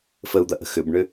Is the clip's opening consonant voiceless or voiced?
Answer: voiceless